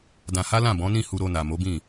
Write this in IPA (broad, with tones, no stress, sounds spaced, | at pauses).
d ã˧ h a˦ l ã˦˨ b ɔ̃˨˦ n ĩ˦˨ h u˧ ɾ o˧ n a˨ m o˨˦ b ĩ˦˨